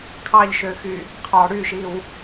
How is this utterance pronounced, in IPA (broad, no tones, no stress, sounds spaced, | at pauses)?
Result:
kʰ ɑ ʎ ʃ ø x y | qʰ ɑ ɽ y ʃ i w